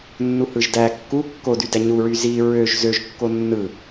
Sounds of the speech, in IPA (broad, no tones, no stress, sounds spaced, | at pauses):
nː u h ɯ ʒ d æ kː u kː o d y d æ ɲ u ɹ y z i ɹ ø ʒ z ø ʒ kː o nː ɯ